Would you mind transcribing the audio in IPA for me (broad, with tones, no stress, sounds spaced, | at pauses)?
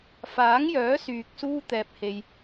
f aː˨˥ ŋ j œː˨˥ s yː˨ k̚ s uː˥ t̪ ɛː˧ p̚ h e˧ j